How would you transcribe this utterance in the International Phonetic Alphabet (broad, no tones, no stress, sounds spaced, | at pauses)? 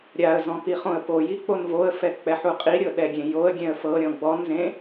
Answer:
ɾʲ a ə̯ z ɔ̃ p i χ õ ə̯ p o j i k͡p o n v o ə̯ f ɛ k͡p ɛ ħ u qʼ i ɾʲ ɤ ɗ ɛ ɡʲ ẽ j o ə̯ ɡʲ ɛ̃ ə̯ f ɤ ɾʲ ɔ̃ ɡ͡b ɔ n z ẽ